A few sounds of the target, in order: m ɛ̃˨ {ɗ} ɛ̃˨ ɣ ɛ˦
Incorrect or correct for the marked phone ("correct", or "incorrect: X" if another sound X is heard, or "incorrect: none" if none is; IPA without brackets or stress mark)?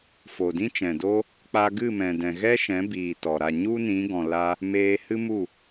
incorrect: d